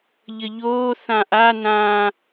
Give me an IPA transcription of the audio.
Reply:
ʎəʎoː θãʔa nãː

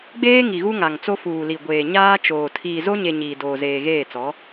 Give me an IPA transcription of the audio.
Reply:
ɡ͡beː˦ ŋi˨ɣu˦ŋa˨ŋt͡so˦ fuː˨li˨ɡʷeː˨ ɲaː˦t͡ʃoː˨ tʰiː˨zo˦ɲe˨ ɲiː˨doː˨zeː˨ɣeː˦˨ t͡sɔ˨˦

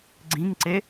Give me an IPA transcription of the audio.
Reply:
ɡ͡ǀĩŋǀe

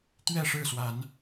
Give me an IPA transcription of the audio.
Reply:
t̪ɥɛ˥˨ʂɻ̩˥˨swa˨˦n

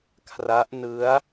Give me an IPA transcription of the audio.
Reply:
kʰra˦˥ʔ nɯ˦˥a̯

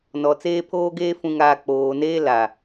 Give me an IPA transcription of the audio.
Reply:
nɔ˨ t͡seː˦pʰoː˦ɡeː˦ fũ˨ŋaː˨ k͡poː˨neː˦ la˨

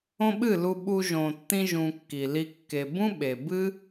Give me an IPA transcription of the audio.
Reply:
õ˦ɓɨ˦˨lu˧ ɓu˧ʒõ˨tːĩ˧ʒũ˨ kːi˨li˧ kːe˨bũ˦ɓe˨ bɨ˦

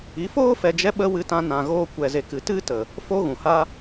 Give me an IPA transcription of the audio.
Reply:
i˨˦foː˦ fɛ˧d͡ʒɛ˦ɓə˦ wɨ˧tã˧ nã˨ ɣoː˧kʷɛ˨ze˨kɨ˨ tɨ˦tə˨ | fo˦ɣũ˨ ha˧

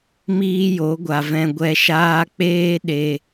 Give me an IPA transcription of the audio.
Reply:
miː˦jo˨˦ɡʷa˨vɛ̃˧ ɡʷɛ˨ʃaː˧ k͡peː˦ ɗe˨

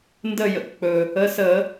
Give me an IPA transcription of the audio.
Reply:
ndə˦˨jə̰˩˧˩kk͡pɵː˩ | ə˩˧˩ səː˧˩˧

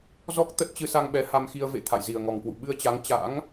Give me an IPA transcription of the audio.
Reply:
zɔ˦˥k̚ t̪ə˦˥t̚t͡ɕɨ˧sa˧ŋɓɛ˨˦ ha˧mxi˧ə̯ vḛ˧˨ t̪ʰa̰˧˨jzi˨˩ə̯ŋɔ˨˩ŋkwṵ˧˨ ɓɨ˧ə̯t͡ɕa˨˦ŋ t͡ɕa̰˧˥ŋ

